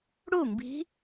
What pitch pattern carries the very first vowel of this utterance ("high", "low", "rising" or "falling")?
falling